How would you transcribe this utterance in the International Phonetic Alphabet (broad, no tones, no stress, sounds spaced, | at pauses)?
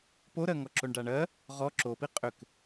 p o ɾ ɜ ŋ ɔ ǁ o ɳ ɖ a ɳ ɜ | ʁ ɔ ǁ o p i qʼ ʏ k